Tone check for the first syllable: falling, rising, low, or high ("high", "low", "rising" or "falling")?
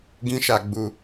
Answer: high